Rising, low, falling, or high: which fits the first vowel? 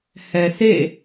low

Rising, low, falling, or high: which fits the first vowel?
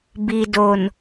low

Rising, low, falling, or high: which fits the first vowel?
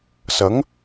rising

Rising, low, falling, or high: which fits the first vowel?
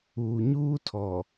low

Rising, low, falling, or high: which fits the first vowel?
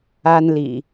high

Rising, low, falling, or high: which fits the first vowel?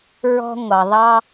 high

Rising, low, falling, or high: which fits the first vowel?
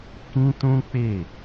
high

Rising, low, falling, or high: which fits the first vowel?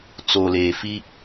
low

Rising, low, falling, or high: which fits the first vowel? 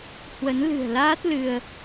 rising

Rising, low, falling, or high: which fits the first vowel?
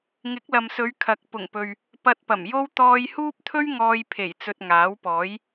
rising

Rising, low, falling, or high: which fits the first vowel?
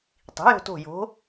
rising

